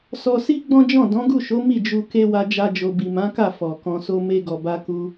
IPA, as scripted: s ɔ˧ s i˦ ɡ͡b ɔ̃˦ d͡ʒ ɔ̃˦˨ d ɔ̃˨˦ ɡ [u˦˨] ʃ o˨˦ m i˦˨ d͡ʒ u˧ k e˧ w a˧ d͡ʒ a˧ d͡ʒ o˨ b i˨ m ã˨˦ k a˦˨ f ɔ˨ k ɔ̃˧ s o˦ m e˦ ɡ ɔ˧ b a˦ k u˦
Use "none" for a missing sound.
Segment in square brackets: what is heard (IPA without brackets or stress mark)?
u˦˨